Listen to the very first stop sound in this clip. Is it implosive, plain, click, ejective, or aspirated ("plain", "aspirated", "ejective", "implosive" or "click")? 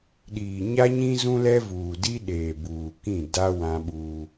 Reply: implosive